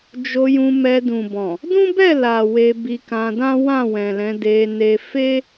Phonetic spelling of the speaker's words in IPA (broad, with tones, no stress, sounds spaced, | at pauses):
d͡ʒ o˧ j ũ˧ m ɛ˧ d ũ˨ b ɔ̃˨ | d ũ˦ b ɛ˦˨ l a˨ w e˧ b i˧ k ã˧ d ã˦ w ã˦˨ w ɛ̃˨ l ɛ̃˨˦ d e˧ n e˧ f e˦